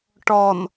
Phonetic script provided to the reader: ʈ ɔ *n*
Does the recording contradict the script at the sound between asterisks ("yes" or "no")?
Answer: no